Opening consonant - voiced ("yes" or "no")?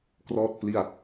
no